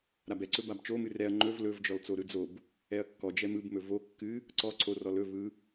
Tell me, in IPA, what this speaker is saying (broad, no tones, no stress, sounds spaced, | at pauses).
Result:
ɾ a b ɛ ǀ ɵ b a b t͡ʃ o m ɨ r ɛ ɐ̯ ŋ͡ǃ ɵ v l ɵ v d͡ʒ ɔ l t͡s o ɾ ɯ d͡z o b | ɛ ɐ̯ kː ɔ d͡ʒ ɛ m ɯ b m ɵ v o kː ɨ | ǀ ɔ ǀʰ o r ɔ l ɵ v ɯ